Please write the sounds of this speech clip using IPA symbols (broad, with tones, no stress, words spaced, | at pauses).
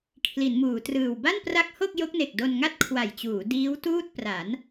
kʰli˩˦nmuː˩˦trɯː˨˩w ba˥˩npra˦˥k̚ho˥˩k̚ jo˦˥k̚ne˨˩k̚ do˧nŋa˥˩t̚ kʰwa˨˩jt͡ɕuː˩˦ diː˦˥w tuː˥˩t̚ pra˩˦n